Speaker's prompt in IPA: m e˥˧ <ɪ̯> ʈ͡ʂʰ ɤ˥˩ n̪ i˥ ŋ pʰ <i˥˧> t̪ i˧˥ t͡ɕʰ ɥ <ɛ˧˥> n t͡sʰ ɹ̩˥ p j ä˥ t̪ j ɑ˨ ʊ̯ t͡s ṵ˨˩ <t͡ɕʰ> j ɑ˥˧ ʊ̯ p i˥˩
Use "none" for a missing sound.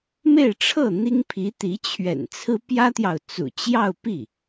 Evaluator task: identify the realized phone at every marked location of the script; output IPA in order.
ɪ̯, i˧˥, ɛ̰˨˩, t͡ɕ

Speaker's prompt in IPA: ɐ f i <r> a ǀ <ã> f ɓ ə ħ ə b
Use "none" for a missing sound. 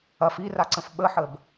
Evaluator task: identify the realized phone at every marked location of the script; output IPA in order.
r, ə̃

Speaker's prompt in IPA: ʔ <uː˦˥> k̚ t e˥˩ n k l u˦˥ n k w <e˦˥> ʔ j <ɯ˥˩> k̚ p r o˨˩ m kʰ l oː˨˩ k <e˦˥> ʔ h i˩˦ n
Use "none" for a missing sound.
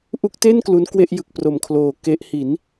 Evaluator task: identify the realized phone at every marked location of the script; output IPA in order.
u˦˥, e˥˩, ɯ˨˩, e˦˥

